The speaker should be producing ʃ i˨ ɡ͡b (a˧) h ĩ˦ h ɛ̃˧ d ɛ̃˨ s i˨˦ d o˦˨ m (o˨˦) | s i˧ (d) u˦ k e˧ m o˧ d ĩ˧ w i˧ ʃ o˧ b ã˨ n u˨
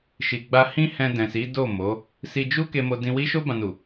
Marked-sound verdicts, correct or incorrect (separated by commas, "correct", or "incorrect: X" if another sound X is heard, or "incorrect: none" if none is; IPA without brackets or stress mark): correct, correct, incorrect: d͡ʒ